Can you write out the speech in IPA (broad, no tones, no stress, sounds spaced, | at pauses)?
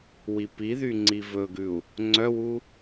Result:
w i p i ð y ŋ͡ǀ i v ɵ ɡ ʉ u̯ | ŋ͡ǀ œ w u